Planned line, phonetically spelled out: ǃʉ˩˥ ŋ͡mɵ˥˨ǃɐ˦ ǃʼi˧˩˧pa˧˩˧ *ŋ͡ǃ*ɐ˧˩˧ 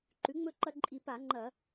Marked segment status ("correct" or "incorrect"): correct